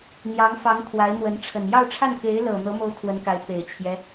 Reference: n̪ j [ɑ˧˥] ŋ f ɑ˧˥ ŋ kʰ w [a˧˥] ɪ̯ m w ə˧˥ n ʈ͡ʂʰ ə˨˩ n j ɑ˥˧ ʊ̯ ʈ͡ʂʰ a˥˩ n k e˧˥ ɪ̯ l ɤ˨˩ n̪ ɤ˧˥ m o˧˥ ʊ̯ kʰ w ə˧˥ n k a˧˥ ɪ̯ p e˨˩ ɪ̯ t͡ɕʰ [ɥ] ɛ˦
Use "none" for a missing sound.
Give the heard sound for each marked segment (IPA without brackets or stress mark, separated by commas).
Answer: ɑ˧˥, a˧˥, j